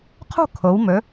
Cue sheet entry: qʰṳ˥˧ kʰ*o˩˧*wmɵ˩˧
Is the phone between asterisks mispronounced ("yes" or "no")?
no